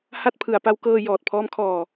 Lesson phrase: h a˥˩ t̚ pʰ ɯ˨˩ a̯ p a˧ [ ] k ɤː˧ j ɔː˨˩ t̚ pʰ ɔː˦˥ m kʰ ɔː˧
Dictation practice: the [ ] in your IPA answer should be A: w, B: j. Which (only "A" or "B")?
A